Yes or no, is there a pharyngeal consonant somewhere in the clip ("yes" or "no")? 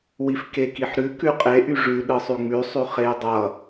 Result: yes